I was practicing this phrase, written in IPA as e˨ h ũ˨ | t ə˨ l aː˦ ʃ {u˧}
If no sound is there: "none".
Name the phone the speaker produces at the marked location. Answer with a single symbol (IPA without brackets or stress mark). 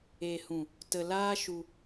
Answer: u˧